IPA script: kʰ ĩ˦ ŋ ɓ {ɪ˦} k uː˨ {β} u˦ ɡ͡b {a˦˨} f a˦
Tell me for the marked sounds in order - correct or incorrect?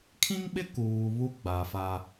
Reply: correct, correct, incorrect: a˨

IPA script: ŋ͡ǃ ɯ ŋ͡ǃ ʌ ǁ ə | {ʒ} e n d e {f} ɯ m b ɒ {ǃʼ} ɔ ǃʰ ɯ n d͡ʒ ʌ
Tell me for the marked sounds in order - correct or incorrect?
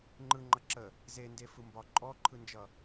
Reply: incorrect: z, correct, correct

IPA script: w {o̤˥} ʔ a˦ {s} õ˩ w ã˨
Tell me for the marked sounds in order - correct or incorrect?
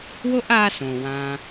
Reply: incorrect: o˥, correct

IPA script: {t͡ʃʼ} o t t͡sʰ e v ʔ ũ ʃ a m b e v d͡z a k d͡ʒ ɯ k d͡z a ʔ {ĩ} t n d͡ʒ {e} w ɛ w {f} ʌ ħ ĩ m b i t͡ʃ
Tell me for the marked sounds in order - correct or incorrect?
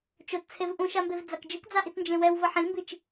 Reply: incorrect: t͡ʃ, incorrect: i, incorrect: ẽ, incorrect: v

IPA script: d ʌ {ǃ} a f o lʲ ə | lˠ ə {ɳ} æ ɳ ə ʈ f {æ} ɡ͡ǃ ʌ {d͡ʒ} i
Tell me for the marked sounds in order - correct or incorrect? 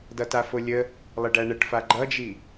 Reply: incorrect: t, incorrect: ɖ, incorrect: a, correct

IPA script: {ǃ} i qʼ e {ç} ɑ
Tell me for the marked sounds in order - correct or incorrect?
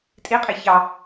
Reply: incorrect: tʼ, correct

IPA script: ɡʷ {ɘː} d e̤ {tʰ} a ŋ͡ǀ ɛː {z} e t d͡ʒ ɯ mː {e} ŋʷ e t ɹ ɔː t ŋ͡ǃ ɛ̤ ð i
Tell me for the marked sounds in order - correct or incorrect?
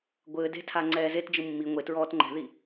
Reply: correct, correct, correct, incorrect: i

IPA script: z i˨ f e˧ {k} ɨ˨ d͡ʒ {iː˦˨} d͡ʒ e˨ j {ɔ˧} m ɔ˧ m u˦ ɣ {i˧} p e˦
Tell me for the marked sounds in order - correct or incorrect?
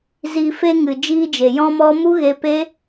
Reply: incorrect: ŋ, incorrect: iː˧, incorrect: ɔ̃˧, incorrect: e˧

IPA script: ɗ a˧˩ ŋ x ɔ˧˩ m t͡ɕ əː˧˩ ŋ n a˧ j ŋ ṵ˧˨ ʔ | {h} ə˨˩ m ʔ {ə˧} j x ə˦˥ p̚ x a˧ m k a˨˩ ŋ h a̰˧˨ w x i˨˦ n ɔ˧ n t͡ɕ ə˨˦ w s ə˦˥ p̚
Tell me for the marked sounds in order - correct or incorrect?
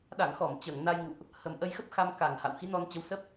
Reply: correct, correct

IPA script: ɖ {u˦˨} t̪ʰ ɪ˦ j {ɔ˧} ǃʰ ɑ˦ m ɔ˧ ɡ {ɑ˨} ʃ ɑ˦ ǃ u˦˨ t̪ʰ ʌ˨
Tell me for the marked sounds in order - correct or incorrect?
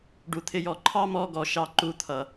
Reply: incorrect: u˧, correct, incorrect: ɔ˨

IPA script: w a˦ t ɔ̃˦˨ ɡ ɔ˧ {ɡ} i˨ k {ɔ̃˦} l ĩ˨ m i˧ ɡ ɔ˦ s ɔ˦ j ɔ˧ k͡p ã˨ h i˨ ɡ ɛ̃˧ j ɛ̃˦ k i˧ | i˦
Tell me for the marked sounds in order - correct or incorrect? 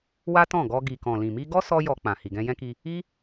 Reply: correct, incorrect: ɔ̃˨

